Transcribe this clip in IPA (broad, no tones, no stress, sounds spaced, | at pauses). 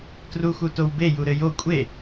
t r u x u t o w b e j u ɾ ɘ j o kʷʼ e